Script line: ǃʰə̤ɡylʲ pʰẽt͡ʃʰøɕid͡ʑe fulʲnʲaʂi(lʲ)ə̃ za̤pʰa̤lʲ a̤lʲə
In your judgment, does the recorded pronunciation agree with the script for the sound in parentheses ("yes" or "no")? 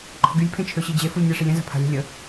yes